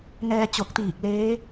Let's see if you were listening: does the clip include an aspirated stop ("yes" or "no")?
no